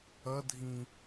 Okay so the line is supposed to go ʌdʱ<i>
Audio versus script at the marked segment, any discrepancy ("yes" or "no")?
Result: yes